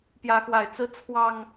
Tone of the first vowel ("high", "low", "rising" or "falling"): rising